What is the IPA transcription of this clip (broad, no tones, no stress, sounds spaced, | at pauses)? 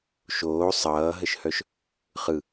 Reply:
ʃ oː sˤ ʌː ɦ ə ʃ h œ ʃ | χ ɯ